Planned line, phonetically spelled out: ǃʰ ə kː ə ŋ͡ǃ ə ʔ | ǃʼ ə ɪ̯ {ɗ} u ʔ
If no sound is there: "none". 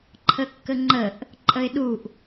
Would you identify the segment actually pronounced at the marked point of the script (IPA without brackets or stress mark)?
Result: ɗ